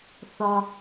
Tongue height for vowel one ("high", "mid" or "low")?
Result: low